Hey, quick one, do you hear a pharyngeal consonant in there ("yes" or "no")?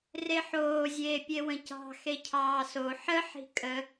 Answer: yes